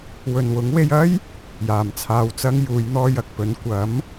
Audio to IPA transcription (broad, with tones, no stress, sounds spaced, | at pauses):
w ɵ˨ n w ʊ˨˥ ŋ w e˧ j ɐ˥ j | j aː˨ m t͡sʰ aː˧ w t͡s ɐ˥ ŋ j uː˨˧ j n̪ ɔː˧ j ɐ˨ k̚ p ɵ˨˥ n kʷ ɐ˨˥ m